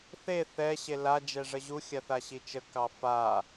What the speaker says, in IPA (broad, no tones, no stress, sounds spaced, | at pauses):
θ e θ ɛ ɕ e l a d͡ʒ ɛ ʐ ə ʑ u xʲ a θ a ɕ i t͡ʃ ə k ɑ f a